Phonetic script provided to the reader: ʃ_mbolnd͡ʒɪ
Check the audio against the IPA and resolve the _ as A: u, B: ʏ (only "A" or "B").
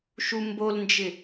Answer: A